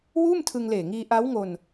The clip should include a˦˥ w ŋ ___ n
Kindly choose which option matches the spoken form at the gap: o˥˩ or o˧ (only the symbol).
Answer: o˧